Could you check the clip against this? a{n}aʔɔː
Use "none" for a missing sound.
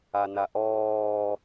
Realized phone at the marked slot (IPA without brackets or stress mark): n